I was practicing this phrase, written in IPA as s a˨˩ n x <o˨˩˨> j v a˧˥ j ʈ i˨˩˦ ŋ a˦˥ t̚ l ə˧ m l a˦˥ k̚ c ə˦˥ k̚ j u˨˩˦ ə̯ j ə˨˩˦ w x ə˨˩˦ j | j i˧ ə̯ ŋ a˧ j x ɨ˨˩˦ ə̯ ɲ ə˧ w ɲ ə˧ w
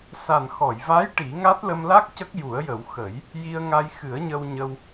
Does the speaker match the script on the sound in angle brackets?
no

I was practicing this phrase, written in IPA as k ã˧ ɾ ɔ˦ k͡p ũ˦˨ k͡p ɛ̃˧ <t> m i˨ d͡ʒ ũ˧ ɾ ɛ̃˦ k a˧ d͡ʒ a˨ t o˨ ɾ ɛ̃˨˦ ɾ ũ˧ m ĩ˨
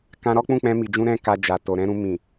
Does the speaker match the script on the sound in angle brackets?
no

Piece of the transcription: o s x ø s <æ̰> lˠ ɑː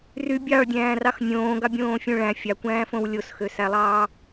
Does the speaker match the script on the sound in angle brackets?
no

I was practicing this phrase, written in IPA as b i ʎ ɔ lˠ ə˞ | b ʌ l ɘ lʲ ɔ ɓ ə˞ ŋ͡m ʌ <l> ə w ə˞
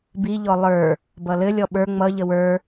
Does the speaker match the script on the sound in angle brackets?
no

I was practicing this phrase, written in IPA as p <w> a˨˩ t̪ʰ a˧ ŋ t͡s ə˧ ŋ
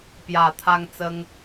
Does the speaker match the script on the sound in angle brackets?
no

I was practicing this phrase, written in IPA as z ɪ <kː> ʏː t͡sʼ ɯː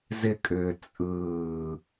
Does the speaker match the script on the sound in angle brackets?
no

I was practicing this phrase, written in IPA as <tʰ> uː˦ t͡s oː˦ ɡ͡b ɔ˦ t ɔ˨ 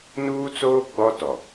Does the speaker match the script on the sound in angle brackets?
no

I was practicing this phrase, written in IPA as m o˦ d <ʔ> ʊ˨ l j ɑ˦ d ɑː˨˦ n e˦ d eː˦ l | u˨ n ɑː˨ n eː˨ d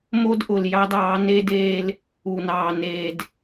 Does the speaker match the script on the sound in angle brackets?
yes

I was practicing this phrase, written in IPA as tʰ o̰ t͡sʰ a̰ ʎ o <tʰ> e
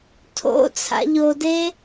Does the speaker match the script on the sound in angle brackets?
no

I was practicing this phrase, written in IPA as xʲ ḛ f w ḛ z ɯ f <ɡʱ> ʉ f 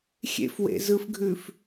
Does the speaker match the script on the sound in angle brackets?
yes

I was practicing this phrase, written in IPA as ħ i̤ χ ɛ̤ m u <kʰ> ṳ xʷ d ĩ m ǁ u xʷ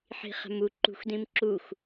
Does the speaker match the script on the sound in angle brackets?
no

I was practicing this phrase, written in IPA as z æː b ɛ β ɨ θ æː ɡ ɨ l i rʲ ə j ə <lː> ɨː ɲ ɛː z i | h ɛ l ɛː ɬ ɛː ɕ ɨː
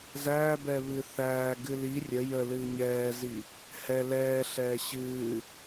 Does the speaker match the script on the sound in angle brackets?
no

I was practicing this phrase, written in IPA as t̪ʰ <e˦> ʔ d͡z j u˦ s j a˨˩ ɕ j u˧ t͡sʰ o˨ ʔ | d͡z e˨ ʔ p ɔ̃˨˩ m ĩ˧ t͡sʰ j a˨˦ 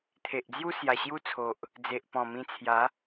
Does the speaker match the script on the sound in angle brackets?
no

